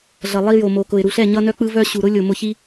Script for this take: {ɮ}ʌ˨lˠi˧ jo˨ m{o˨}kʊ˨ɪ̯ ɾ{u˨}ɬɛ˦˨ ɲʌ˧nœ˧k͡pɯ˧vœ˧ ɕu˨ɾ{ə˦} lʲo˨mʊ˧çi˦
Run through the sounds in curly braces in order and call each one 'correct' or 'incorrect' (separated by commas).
correct, correct, correct, incorrect